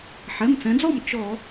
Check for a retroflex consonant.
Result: absent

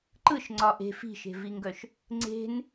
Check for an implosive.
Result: absent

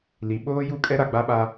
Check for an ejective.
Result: present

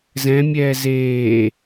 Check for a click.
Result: absent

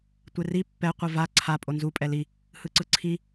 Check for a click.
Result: present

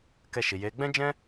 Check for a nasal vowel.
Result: present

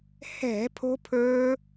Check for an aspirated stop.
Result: present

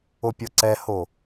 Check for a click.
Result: present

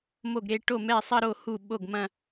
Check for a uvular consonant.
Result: absent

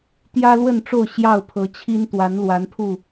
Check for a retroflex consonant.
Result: present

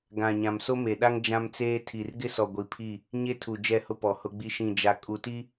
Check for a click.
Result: absent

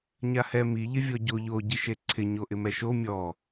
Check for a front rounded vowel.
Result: absent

